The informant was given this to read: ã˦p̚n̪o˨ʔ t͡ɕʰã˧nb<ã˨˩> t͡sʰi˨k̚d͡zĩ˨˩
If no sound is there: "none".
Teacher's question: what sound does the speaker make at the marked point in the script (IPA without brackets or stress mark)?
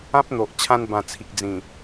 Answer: ã˨˩